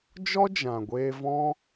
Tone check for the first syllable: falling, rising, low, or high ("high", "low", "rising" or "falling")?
high